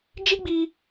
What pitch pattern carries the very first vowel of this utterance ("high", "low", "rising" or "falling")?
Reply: high